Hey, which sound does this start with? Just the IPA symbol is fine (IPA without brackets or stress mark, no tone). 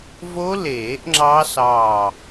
v